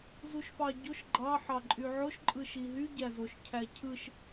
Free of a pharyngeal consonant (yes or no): no